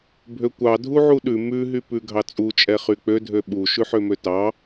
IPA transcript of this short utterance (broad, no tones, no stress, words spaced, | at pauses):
bʱøkʷɑ dʱuʕuɗʉ mʉ ɦypʉɡʱɑt͡sʼu t͡ʃʼɛχyk͡pø dʱøɓu ʃʉħømøtɑ